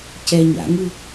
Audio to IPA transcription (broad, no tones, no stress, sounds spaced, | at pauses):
c ɛ ɲ a̰ ŋ ɯ